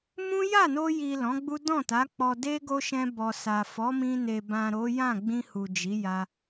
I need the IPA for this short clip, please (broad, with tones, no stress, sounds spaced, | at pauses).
m ũ˦ j a˦˨ n o˧ j i˨ l ɔ̃˨˦ ɡ͡b u˦ d ɔ̃˦˨ t a˨˦ k͡p ɔ˧ d e˦ ɡ o˦ ʃ ɛ̃˧ b ɔ˨ s a˨ f ɔ˨˦ m ĩ˧ n e˨ b ã˨ ɾ o˨˦ j ã˦˨ ɡ͡b ĩ˧ h u˨ d͡ʒ i˨˦ j a˧